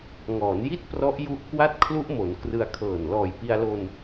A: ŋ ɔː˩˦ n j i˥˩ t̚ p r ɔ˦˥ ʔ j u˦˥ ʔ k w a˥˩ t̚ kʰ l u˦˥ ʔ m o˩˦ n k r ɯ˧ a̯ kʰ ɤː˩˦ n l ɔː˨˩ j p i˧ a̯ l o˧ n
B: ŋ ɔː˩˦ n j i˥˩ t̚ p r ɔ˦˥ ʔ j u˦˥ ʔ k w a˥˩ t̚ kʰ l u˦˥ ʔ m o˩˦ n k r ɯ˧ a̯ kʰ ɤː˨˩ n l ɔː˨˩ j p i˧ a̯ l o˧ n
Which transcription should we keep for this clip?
B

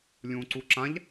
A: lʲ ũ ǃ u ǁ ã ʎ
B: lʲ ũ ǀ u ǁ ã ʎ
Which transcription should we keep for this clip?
B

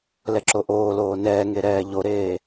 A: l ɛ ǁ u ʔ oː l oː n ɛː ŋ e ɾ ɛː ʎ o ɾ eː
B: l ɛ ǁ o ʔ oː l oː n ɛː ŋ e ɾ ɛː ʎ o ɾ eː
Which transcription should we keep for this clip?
B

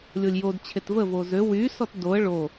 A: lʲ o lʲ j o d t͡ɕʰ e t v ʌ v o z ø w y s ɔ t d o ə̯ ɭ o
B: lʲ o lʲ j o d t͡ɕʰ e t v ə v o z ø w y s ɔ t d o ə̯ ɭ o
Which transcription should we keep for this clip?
B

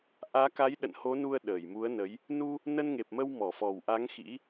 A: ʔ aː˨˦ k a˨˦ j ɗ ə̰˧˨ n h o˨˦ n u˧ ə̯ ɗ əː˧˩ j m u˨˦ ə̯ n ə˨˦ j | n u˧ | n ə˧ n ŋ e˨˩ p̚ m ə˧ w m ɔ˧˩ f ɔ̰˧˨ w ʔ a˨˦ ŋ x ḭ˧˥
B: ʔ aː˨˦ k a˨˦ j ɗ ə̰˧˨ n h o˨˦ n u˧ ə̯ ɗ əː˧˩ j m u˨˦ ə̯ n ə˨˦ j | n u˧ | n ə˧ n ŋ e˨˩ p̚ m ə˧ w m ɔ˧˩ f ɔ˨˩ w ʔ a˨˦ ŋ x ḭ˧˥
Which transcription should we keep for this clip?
B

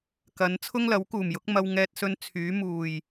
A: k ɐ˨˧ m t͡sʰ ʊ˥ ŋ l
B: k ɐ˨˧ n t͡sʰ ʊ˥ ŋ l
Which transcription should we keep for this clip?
B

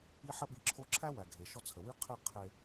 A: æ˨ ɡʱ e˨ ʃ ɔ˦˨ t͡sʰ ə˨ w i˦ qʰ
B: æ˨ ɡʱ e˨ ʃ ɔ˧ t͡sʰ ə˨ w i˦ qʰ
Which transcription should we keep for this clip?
B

